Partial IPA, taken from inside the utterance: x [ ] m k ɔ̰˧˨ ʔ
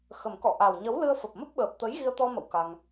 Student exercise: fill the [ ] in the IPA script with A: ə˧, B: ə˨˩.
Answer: B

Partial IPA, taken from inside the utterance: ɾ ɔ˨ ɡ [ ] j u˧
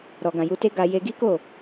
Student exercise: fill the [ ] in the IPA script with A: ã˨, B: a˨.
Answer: A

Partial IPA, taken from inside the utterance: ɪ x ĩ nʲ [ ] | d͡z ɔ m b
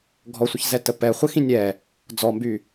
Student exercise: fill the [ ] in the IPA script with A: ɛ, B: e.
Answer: A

